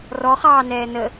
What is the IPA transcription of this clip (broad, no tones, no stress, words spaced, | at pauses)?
rɔχɑː nɛːnə